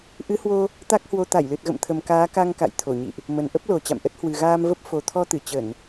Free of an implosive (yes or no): yes